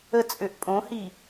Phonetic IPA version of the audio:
ət͡sʼøʔ pʼõhi

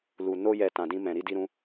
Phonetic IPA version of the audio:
lu˨ no˧jɛ˨ tã˨dĩ˧ mɛ̃˨ ɾi˧di˧ɾũ˧

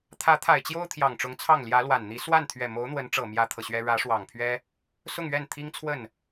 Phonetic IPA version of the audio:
t̪ʰä˧˥t̪ʰa˨˩ɪ̯t͡ɕjo˥ʊ̯ t̪ʰjɑ˨˩ŋʈ͡ʂʊ˧˥ŋt͡sʰɑ˥˩ŋ ljä˧˥lwa˨˩nn̪i˧˥ swa˥˩n t̪ʰɥɛ˨˩mo˧˥ʊ̯n̪wə˧˥nʈ͡ʂɤ˨˩ mjä˥t̪ʰɤ˨ɕɥɛ˥ ɻä˧˥ʂwɑ˨˩ŋpʰɥɛ˥ | sʊ˥˧ŋɥɛ˥˩nt̪ʰi˥ŋt͡sʰwə˥˩n

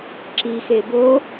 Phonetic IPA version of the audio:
ǁixe bo

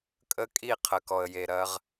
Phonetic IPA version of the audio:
kʼə˦kʼi˦˨ qʰə˨kɔ˨ə̯je˨ɾɐ˦ʁ

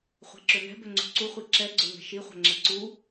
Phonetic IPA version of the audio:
χʷɛ̤ǁønɛ̤ bøŋ͡ǀṳǀu χʷiǁɛ ɡ͡ǀøŋɛ̤ʃi χʷɛ̤ŋ͡ǁɛǀu

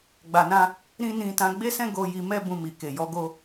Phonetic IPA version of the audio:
ɡ͡ba˨nã˧ | ɾĩ˦nĩ˧ tã˧ɡ͡be˦sɛ̃˦ ɡo˧ ji˧ mɛ˦ bũ˧mi˨ ke˨jɔ˨˦ɡo˧

